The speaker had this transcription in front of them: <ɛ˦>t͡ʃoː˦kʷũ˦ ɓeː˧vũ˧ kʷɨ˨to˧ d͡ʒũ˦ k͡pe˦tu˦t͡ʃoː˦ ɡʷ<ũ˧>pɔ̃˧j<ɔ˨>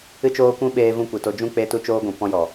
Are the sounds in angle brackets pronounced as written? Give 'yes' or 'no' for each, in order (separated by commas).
no, no, yes